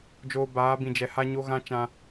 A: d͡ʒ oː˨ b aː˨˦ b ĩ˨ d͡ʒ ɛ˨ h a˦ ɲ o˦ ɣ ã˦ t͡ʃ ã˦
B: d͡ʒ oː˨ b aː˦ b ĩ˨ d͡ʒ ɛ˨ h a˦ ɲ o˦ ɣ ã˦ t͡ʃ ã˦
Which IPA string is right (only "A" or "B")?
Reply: A